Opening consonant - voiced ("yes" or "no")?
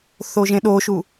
no